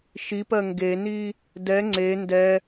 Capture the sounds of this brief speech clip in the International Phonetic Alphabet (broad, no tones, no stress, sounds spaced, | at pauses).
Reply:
ʃ i p ɜ ŋ ɡ e n i | d ɛ ŋ͡ǀ e n d ɛ